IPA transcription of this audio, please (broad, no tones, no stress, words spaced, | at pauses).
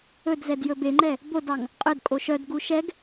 ɵdzɛd jɵbeŋ͡ǃɛ | bodɑŋ | qʼœdkʼo ʃœdɡu ʃɛɡ